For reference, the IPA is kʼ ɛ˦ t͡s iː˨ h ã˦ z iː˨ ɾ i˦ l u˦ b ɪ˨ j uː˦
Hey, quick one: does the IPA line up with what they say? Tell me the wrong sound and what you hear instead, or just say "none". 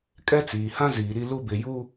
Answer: none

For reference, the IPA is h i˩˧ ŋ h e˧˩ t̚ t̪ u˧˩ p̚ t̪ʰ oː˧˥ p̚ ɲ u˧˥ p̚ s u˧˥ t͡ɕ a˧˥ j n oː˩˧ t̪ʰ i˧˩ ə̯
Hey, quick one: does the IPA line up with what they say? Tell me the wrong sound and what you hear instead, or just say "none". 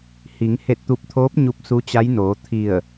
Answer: none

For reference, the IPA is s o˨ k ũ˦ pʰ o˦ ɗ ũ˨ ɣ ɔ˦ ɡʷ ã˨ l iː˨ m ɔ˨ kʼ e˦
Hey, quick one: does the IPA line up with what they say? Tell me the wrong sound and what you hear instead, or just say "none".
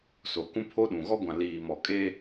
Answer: none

